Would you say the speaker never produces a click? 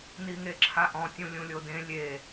no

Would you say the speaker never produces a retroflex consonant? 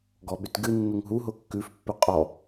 yes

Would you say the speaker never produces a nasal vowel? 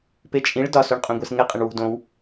no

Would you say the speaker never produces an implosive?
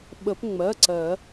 no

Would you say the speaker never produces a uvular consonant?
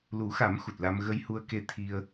yes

